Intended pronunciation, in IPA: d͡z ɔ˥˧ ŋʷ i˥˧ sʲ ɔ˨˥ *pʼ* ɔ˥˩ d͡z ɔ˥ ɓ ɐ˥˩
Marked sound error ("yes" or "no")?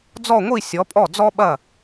no